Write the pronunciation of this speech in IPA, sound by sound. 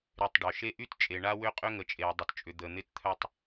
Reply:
ɾ y˨ tˤ ɖ œ˩ ʃ e˦ ʔ y˥ t t͡ʃʼ e˨ ɳ a˦ w ʏ˦ qʼ ʏ˦ ŋ ə˨ t͡ʃʼ e˨ w dˤ ə˨ t t͡ʃʼ ʏ˨ d̪ ə˨ n̪ ɪ˦ t t̪ʰ œ˦ tˤ

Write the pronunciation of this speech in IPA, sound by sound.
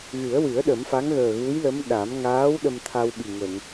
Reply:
ɣ ɨ˨˩˦ ə̯ w ɨ˨˩˦ ə̯ ɗ ə˨˩˦ m f a˧˥ ŋ ɣ əː˨˩ ɣ u˧˥ j l ə˧˥ m ɗ a˨˩˦ m ŋ aː˧˥ w ɗ ə˧ m t̪ʰ a˧ w ɓ i˨˩ ŋ ə˨˩˨ ŋ

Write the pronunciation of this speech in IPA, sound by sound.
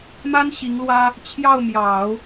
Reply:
m a˥ n ɕ i˧˥ ŋ l w ä˥ | t͡ɕʰ j ɑ˥˩ ʊ̯ m j ɑ˨˩˦ ʊ̯

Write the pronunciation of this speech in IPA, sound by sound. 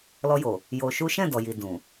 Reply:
l ɔ˧ j o˨ | j o˧ ʃ u˦ ʃ ɛ̃˦˨ d ɔ˨ j i˨ d ũ˨

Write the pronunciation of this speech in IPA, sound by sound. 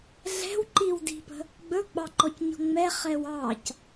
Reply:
ɮ ɛ̤ w ǃ i w d i̤ p ə̤ | ɡ͡b ɵ ɡ͡b ɑ ǃ ɔ c ɲ ɔ̤ ŋ͡m ɛ χ ɛ w ɑ c

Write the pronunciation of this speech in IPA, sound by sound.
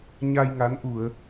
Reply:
ɲ a˧ j ŋ a˨˦ n ʔ u˧˩˨ ə̯

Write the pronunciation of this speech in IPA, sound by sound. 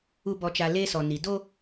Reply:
u˨ b ɔ˨ t͡ʃ a˨ l e˦ s ɔ˨ n i˨ d o˦

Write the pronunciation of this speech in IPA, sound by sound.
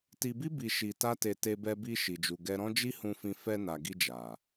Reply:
t i˧ b i˦ b i˧ ʃ i˧ t a˦ t e˧ t e˧ b ɛ˧ b i˧ ʃ i˨ d͡ʒ u˨ ɡ ɛ˧ ɾ ɔ̃˦ d͡ʒ i˦ h ũ˧ f ĩ˧ f ɛ˧ n a˨ ɡ i˧ d͡ʒ a˨

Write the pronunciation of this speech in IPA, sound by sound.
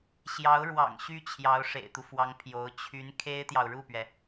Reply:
ɕ j ɑ˧˥ ʊ̯ ɻ w ɑ̰˨˩ ŋ ɕ y˥ t͡ɕʰ j ɑ˧˥ ʊ̯ ʂ ḛ˨˩ ɪ̯ t̪ u˦ f w ɑ˧˥ ŋ pʰ j o˧˥ ʊ̯ t͡ɕʰ y˧˥ n kʰ e˥ ɪ̯ t̪ j ɑ˨ ʊ̯ ɻ u˥˩ p ɥ ɛ˩

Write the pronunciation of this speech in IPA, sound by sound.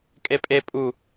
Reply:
kʼ e pʼ e pʼ u

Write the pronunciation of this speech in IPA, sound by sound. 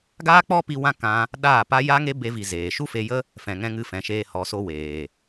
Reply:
ɡ aː˦ k͡p ɔ˦ p i˧ w ã˦ k ã˧ | ɗ aː˦˨ p a˦ j a˦ ŋ e˦ b e˧ v i˨ z eː˨ ʃ u˦ f e˧ j ə˦ | f ɛ̃˨ ŋ ɛ̃˧ ŋ ɨ˧ f ɛ̃˨ ʃ eː˧ h ɔ˨ s o˧ w eː˨

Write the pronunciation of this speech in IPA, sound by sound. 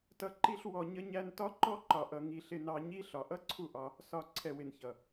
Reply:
t ʌ˧ ǃ i˧ ɬ w ɔ˨ ɲ ə˧ ɲ æ˧ n t ɒ˦ ǃ ɔ˦ ǃ ɒ˨ ʔ ʌ˨ ŋ i˨ ɬ ɪ˧ n ɑ˧ ɲ i˦ ɬ ɒ˨ ʔ ʌ˦ ǀʰ u˦˨ ʔ ɒ˧ | s ɒ˨ ǀʰ ɛ˨ w ɪ˨ n ç ʌ˨

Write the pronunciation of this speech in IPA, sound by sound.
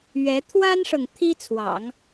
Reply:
ɥ ɛ˧˥ t̪ʰ w a˥ n ʂ ɤ˨ ŋ t̪ʰ i˥ t͡sʰ w ɑ̰˨˩˦ ŋ

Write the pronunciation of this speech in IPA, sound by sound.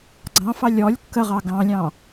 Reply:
ɡ͡ǀ ɑ̃ f ɑ lʲ ɔ lʲ kː ə ʁ ɑ ɡ ɑ̃ lʲ ɑ̃

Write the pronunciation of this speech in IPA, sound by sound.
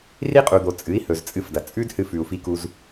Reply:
r i˦ qʼ u˨ d̪ o˨ t͡sʼ ɨ˨˦ i̯ h ɵ˨ z t͡sʼ ɨ˧ f d ɐ˨ t͡sʼ ʉ˦ d h ɨ˧ f ʉ˨ u̯ f i˧ k u˧ z

